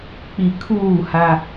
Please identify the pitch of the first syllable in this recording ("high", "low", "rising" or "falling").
low